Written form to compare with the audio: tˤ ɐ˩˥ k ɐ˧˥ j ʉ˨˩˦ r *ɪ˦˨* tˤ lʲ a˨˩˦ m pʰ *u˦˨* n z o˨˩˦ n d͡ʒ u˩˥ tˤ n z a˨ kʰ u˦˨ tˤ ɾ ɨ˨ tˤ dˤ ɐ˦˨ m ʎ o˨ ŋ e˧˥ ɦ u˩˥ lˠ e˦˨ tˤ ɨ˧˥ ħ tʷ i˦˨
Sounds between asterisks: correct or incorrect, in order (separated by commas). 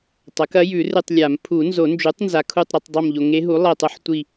incorrect, incorrect